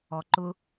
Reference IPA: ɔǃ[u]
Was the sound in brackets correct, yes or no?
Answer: no